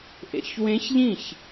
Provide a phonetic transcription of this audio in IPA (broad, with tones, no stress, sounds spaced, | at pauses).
ʔ ḛ˨ ç w ẽ˧˥ ç ʎ ĩ˥˩ ç